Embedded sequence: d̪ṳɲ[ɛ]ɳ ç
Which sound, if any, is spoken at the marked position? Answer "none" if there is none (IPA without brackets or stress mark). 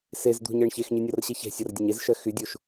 ɜ